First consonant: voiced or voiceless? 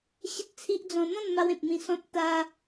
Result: voiceless